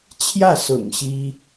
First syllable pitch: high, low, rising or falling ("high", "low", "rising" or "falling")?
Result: falling